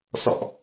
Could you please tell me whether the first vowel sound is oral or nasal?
oral